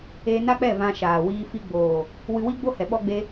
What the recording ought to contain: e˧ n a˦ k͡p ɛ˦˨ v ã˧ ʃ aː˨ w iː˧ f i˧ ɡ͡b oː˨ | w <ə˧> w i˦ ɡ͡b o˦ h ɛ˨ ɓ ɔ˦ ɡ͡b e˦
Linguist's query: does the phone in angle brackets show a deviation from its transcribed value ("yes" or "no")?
yes